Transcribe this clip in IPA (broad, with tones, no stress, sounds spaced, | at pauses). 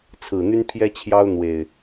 t͡sʰ ɹ̩˨˩ n̪ y˦ n pʰ j ɛ˦ t͡ɕʰ j ɑ˦ ʊ̯ n̪ w e˨˩ ɪ̯